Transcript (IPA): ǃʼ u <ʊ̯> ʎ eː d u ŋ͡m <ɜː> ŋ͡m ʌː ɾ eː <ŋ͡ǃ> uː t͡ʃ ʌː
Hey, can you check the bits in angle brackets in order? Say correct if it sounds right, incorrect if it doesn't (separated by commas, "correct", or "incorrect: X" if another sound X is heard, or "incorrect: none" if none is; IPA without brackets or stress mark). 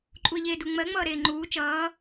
incorrect: ə̯, incorrect: ɜ, correct